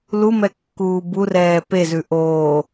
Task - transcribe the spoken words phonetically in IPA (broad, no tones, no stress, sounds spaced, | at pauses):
l u m ɛ kː uː b u r ɛː p e z ʉ ʔ oː